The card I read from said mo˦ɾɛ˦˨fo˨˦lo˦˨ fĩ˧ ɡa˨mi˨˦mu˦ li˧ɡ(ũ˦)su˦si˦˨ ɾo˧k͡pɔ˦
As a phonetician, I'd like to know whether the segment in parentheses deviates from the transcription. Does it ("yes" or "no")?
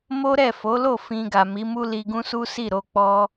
no